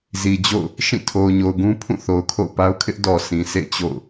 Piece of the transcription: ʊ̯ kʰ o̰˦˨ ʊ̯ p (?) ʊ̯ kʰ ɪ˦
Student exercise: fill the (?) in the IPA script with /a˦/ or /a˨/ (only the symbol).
a˦